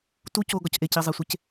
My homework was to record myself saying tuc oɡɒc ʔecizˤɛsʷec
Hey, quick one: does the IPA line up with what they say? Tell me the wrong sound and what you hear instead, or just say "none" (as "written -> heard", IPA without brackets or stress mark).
ɛ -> e